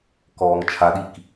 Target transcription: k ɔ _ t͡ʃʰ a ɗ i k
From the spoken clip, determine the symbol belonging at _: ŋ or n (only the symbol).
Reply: ŋ